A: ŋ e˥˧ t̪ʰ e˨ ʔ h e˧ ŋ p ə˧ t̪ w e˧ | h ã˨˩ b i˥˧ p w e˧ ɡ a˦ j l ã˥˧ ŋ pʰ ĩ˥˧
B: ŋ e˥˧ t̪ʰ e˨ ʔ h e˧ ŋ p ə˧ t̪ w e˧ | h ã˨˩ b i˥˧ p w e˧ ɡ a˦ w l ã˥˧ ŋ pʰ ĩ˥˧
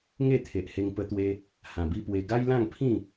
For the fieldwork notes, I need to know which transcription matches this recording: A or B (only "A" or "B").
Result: A